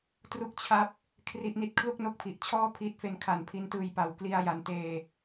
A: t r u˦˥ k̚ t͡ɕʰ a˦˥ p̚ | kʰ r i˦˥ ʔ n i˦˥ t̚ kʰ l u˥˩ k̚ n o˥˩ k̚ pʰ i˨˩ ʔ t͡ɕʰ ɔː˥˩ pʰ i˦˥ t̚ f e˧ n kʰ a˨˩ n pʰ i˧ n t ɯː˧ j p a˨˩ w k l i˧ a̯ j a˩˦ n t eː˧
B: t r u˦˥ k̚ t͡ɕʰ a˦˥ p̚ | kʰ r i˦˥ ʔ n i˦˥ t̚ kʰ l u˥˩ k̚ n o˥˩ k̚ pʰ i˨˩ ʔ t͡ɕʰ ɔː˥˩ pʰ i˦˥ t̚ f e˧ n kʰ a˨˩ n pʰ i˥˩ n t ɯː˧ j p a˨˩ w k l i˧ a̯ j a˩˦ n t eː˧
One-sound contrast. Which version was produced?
A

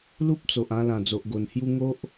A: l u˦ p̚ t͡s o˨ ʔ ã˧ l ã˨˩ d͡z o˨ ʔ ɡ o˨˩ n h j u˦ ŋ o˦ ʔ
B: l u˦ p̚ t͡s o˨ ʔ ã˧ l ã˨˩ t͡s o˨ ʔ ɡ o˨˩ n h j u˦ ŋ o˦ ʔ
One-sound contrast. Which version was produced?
A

